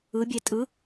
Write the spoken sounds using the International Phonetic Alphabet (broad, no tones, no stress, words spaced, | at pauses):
ɯbʲe tʼɯ